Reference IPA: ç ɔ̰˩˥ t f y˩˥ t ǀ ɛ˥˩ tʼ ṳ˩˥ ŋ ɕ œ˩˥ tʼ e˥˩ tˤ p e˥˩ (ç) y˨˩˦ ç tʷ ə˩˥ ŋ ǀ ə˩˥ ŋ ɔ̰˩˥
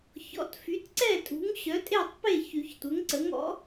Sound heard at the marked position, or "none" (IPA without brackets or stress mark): ç